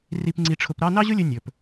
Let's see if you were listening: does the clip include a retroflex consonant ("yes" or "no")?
yes